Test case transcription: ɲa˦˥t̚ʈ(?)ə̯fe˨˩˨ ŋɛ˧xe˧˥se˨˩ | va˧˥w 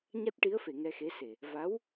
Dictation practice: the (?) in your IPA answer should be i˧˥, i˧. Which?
i˧˥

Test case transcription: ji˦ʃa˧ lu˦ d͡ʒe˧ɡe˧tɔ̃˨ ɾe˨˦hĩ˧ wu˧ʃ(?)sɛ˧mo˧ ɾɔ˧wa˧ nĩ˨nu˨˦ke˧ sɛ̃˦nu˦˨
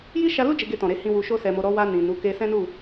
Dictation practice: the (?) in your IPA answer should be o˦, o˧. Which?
o˦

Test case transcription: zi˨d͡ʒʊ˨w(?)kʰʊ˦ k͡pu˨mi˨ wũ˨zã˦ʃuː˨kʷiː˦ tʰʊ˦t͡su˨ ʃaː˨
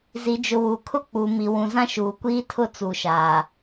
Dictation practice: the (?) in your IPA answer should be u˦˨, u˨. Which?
u˨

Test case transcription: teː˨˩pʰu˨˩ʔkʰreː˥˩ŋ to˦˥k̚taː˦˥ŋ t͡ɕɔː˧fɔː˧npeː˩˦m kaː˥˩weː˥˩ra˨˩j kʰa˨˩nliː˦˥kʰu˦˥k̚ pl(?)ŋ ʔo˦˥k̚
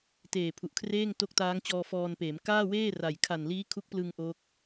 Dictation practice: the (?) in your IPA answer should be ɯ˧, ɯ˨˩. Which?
ɯ˧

